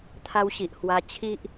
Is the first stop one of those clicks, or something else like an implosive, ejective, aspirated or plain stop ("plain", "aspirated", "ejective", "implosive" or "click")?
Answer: aspirated